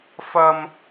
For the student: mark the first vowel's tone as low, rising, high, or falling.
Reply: high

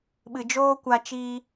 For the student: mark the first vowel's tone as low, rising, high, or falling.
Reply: low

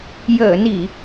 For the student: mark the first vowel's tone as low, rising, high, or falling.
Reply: low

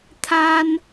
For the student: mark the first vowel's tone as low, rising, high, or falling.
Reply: high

